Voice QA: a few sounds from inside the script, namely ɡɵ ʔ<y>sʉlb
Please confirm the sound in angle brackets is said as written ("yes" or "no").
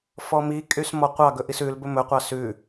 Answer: no